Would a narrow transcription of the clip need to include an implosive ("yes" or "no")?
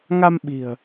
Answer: yes